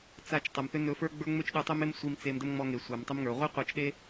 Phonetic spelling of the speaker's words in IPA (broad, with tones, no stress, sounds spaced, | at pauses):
t͡s a˧ t͡ʃ tˤ ɜ˨ m θ ʏ˦ n ɵ˧ f ə˞˦ ɡ͡b ə˞˦ ŋ͡m ʏ˦ t͡ʃ ɗ ə˞˧ tˤ ɵ˦ m e˦ m sʷ i˧ m t͡s e˧ m d ə˦ m ŋ͡m ɔ˧ ŋ e˨ sʷ a˨ m tˤ ə˦ m ŋ ə˞˨ ʁʷ i˦ qʷ ɜ˧ t͡ʃ ɗ e˦